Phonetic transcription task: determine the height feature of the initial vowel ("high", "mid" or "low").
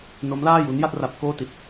mid